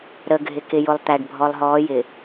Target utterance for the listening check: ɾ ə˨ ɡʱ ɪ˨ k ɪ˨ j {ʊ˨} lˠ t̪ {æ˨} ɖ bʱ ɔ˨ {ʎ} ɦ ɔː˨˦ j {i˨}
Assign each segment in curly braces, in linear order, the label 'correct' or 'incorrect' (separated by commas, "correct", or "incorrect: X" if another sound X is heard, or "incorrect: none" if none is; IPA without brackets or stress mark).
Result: correct, correct, incorrect: lˠ, incorrect: ɪ˨